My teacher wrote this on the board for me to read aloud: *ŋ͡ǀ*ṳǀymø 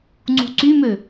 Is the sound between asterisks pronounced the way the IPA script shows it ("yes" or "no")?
yes